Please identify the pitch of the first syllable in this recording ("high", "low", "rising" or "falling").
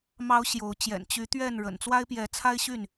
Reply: rising